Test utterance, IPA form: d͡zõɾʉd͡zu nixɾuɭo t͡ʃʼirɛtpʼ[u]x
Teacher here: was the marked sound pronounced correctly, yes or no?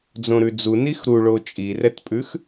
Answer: no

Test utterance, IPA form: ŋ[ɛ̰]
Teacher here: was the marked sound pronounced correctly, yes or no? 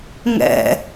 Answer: yes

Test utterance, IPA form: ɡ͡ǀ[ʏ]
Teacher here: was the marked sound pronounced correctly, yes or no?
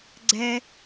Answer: no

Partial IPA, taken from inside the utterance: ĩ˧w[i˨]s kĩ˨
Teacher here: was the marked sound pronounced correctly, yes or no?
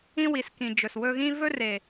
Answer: yes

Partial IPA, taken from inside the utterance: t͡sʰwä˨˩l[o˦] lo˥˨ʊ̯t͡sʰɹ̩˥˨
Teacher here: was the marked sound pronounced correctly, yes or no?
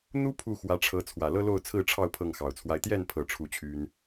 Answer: no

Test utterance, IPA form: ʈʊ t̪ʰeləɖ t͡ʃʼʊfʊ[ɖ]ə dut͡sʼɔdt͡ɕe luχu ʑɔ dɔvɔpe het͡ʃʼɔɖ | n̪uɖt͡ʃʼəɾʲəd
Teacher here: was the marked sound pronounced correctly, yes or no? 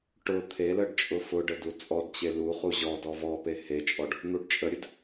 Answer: yes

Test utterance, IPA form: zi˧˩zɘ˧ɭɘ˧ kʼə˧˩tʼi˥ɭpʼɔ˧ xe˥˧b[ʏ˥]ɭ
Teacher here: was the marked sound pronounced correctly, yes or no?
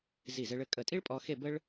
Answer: no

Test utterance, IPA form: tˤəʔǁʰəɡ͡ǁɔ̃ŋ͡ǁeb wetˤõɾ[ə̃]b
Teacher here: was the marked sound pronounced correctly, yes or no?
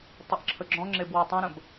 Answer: yes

